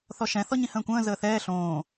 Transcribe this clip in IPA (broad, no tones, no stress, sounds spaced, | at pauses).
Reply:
θ ɔ ʃ ɛ̃ θ ɔ ɲ ĩ h ə̃ː kʷ ə̃ː z əː θ ɛː ɬ õː